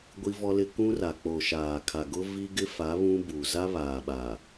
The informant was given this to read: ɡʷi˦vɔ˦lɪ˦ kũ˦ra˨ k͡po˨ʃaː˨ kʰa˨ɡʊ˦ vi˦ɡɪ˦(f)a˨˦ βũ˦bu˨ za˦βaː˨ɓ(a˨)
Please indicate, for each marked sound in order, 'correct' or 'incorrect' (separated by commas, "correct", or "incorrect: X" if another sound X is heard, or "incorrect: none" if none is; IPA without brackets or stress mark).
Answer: correct, correct